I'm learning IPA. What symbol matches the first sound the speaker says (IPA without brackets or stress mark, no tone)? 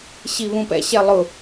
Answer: ɕ